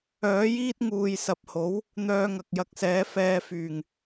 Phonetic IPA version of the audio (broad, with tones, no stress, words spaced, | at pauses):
œː˨˥jiː˥t̚ŋuː˨jsɐ˨p̚ ho˨˥w | n̪œː˧ŋɐ˨k̚jɐ˧k̚sɛː˨˥ fɛː˧fyː˨˩ŋ